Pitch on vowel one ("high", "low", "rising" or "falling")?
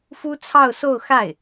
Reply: high